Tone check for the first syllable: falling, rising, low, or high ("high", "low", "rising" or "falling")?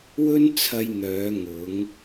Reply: high